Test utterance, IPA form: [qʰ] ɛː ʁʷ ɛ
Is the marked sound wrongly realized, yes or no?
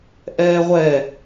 yes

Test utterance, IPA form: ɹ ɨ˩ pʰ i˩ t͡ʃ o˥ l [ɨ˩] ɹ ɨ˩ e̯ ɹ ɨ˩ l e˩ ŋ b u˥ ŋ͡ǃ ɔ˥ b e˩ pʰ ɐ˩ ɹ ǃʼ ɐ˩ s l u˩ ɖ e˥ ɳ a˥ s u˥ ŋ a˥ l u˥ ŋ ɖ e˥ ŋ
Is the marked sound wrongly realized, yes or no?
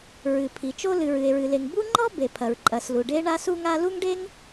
no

